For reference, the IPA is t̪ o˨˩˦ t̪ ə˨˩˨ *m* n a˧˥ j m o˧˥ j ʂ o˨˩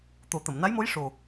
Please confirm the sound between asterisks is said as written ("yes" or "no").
yes